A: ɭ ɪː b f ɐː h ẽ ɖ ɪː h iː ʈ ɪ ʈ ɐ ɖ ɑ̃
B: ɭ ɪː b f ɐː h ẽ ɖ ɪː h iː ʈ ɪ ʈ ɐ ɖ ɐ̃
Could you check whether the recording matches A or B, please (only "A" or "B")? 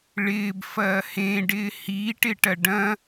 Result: B